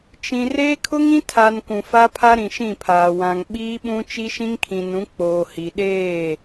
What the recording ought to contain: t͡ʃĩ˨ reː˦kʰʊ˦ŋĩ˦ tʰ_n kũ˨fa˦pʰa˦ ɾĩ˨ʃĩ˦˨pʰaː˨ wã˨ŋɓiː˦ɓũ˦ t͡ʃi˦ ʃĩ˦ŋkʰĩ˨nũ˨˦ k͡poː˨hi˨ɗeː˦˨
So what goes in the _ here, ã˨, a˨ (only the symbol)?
a˨